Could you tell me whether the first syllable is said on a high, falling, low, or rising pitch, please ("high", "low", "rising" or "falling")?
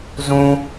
low